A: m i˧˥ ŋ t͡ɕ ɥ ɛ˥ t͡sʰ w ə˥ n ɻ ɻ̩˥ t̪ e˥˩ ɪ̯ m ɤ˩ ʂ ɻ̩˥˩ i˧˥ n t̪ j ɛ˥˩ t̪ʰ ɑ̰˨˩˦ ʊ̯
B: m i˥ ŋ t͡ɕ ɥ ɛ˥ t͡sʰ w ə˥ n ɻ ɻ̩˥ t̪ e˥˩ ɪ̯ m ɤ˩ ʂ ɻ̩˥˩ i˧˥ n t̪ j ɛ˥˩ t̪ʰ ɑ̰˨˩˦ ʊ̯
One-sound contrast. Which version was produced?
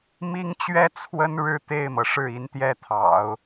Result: B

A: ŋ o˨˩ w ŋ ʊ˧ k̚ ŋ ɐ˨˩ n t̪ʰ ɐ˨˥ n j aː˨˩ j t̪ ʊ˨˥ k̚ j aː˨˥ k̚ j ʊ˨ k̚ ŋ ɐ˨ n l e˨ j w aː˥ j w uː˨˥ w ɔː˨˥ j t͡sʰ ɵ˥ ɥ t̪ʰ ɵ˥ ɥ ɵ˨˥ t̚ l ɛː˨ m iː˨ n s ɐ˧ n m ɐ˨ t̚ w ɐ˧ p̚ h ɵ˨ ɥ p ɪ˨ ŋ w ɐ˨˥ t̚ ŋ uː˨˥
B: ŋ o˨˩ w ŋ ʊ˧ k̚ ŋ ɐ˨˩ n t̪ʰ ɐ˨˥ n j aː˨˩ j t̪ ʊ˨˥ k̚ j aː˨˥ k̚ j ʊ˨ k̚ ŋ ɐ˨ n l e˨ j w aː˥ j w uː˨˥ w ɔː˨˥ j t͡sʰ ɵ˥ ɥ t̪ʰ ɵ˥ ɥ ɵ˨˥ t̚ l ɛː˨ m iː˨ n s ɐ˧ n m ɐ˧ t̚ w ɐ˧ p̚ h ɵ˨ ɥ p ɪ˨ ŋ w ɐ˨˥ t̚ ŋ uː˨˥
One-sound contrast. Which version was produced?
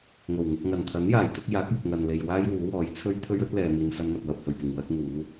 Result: A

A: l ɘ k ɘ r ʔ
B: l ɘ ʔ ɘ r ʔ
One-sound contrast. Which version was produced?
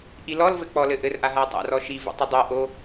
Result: B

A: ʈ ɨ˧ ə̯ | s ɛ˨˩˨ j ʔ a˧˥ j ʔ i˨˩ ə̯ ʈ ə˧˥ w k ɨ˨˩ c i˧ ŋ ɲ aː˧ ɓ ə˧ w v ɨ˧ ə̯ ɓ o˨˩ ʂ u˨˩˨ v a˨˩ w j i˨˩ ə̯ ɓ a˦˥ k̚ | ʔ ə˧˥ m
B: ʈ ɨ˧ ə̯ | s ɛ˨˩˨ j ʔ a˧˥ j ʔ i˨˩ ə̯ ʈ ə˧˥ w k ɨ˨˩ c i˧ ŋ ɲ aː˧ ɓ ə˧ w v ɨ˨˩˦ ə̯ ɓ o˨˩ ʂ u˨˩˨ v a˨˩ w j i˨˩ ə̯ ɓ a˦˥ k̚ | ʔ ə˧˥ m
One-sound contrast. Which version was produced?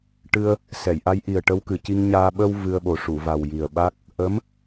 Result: A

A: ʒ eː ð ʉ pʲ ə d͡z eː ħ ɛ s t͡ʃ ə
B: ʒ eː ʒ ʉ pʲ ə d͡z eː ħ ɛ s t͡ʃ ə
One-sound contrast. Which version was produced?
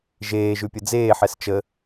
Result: B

